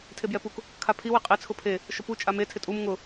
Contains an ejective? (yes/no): yes